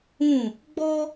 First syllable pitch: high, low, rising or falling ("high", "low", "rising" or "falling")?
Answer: falling